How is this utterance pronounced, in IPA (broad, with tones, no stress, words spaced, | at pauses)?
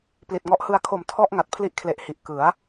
pli˨˩t̚ŋɔ˦˥ʔ hɯ˧a̯kʰo˨˩m tʰɔ˥˩ʔ ŋa˨˩t̚ pʰli˦˥ʔkʰle˨˩ʔhi˨˩ʔ kɯ˩˦a̯